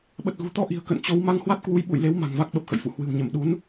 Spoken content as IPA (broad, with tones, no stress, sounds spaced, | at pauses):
ɓ ə˨˩ t̚ ɣ ṳ˨˩ t̪ ɔ˧ ʔ i̤˨˩ ə̯ k ə̰˧˨ n t͡ɕ o˨˦ w m a˧ ŋ h w a˦˥ t̚ k w u˨˦ j ɓ ṵ˧˨ j l e˨˦ w m a̤˨˩ ŋ v a˦˥ k̚ ɓ ə˨˩ p̚ x ə̰˧˨ j f ṵ˧˨ h w ɨ̤˨˩ w ɲ ə˧˩ m ɗ u˨˦ n